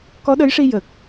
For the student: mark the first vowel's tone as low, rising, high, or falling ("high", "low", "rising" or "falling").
rising